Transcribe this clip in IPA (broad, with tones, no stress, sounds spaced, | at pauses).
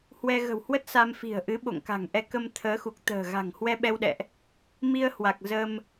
h w ɛ˧ ɣ ə̤˨˩ w h w ə˦˥ t̚ s a˧ m f i̤˨˩ ə̯ ʔ ɨ˨˦ ɓ o̰˧˨ ŋ k a̤˨˩ ŋ ʔ ɛ˧ k ə˧ m t̪ʰ əː˨˦ x u˨˩ k̚ t̪ ə̤ː˨˩ ɣ a̤˨˩ ŋ h w ɛ˧ ɓ ɛ˧ w ɗ ɛ̰˧˨ ʔ | m i˧ ə̯ h w a˨˩ k̚ z ə˧ m